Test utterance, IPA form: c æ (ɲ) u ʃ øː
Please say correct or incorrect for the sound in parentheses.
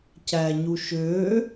correct